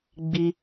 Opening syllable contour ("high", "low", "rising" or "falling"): high